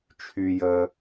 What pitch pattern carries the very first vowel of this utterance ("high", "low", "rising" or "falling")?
low